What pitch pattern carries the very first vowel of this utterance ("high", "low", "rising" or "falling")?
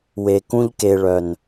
low